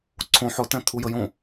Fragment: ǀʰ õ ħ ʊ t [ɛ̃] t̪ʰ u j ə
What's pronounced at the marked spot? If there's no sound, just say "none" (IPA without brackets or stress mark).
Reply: ɛ̃